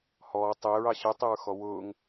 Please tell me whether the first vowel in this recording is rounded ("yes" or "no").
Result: yes